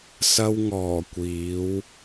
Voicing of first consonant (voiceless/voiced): voiceless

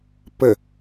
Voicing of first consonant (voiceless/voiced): voiceless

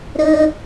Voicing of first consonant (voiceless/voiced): voiced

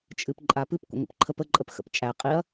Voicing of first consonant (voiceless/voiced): voiceless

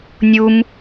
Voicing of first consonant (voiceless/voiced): voiced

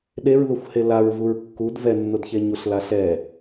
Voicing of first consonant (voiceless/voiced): voiced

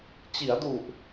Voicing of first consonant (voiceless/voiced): voiceless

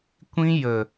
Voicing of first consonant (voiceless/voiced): voiceless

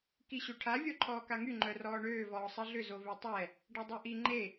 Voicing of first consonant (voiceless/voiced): voiceless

